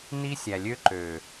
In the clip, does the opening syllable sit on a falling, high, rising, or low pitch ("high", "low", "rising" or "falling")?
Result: high